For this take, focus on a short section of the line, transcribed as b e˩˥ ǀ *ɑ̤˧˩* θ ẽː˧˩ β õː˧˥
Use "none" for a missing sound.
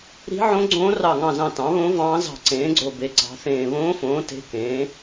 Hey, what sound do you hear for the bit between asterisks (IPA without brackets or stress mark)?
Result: ɑ̤˩˥